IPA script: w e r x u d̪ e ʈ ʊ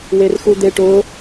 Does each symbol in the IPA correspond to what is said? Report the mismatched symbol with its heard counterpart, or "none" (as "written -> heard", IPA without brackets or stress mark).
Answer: none